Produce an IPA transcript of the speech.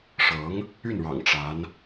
ʂɤ˧˥ŋ | y˥˩nɻɑ̰˨˩ŋ ʈ͡ʂa˧˥n

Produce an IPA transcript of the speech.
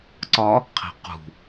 ǀɒ | qʰe̤qṳ

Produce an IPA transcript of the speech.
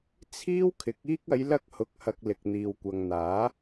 t͡sʰiː˥wkʰɪ˨˥k̚ iː˧k̚ɐ˨˧jlɐ˧k̚ hʊ˧k̚hɐ˧k̚ lɪ˨k̚n̪iː˨wkʷɐ˨ŋn̪aː˨˥

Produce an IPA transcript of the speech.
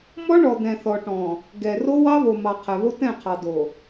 mɔ˦ɳɔ˨d̪ɛ̃˨ θɔ˨ʈɔ̃˨ | ɡɛ˨ro˦ wɑ˦βo˨ mɑ˨ qʰɛ˨βo˦ tɛ̃˦˨qʰɑ˨do˨

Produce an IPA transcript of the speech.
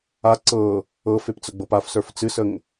a ǀɤ | ɤfep t͡səɡ͡bɤpafsə˞f t͡sɨsəŋ

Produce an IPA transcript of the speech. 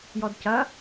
jɔdcɐ

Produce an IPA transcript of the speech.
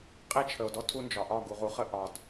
qʼe˦t͡ʃʰə˨o̯dɔ˦ tʰu˦nd͡ʒɒ˨ ʔɒ˦˨ɡu˨ʁ u˦χə˦ ʔɒ˨d

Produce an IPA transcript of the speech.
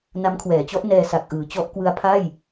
na˦˥mkʰwɛː˩˦t͡ɕɔ˦˥ʔ nɛː˧ sa˨˩k̚ʔɯː˩˦t͡ɕɔ˦˥ʔ kwɯ˦˥a̯pʰa˥˩j

